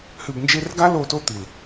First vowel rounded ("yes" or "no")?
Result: yes